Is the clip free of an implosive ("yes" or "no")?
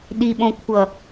no